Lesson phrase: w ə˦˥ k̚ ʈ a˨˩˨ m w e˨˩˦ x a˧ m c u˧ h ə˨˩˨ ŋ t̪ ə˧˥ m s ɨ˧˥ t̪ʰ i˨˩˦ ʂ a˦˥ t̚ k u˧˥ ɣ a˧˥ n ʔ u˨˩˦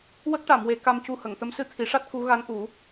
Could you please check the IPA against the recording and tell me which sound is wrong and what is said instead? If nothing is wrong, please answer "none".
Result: x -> k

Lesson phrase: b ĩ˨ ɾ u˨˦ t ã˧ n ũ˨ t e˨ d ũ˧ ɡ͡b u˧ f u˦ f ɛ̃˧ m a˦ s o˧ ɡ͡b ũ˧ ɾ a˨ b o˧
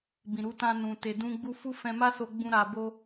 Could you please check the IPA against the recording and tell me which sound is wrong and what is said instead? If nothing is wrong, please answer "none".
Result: none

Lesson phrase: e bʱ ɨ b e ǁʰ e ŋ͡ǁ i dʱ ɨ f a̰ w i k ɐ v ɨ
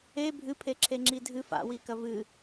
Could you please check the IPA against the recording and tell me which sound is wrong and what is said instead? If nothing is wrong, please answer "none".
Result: b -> pʰ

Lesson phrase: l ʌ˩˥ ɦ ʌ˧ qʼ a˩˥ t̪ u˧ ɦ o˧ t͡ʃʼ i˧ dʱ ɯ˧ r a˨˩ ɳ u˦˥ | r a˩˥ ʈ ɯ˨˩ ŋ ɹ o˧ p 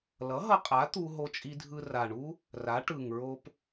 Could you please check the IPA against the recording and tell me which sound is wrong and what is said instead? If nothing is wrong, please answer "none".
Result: none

